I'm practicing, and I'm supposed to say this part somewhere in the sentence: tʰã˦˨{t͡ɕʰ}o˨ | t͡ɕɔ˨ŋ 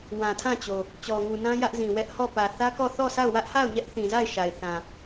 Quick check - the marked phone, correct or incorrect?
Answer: incorrect